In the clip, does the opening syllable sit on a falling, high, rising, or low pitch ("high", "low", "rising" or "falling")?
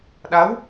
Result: rising